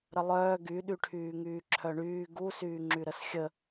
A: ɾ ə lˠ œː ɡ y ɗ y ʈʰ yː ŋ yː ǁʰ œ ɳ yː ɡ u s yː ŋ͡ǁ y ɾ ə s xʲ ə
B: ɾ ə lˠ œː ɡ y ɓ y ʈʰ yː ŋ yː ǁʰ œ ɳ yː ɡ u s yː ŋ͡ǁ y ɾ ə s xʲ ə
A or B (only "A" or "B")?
A